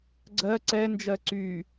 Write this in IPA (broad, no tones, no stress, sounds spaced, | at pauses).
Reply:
ɡ͡ǀ ɜ ǀ ɛ n d͡ʒ ɜ ǀ y